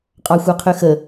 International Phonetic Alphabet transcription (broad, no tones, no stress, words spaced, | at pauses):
qʼɑxʷɑqʰøxə